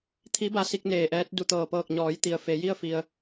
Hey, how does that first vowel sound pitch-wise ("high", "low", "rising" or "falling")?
rising